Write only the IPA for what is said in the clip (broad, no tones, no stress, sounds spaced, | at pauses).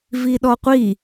v i ɗ ɔ qʷ i